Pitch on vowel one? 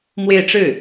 falling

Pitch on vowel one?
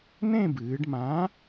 falling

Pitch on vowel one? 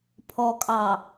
low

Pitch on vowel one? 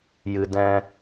low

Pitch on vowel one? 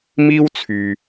high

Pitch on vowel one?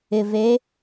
low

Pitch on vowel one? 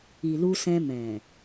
low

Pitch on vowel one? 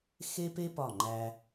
high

